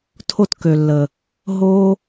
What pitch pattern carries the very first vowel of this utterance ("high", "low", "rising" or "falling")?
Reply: high